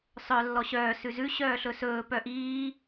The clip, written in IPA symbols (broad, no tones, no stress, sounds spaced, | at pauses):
sˤ œ lː ɔ ɕ œː s ʉ z ʉ ɕ œː ɬ ɵ s ɵː p œ ʔ iː